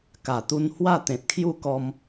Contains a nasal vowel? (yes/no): yes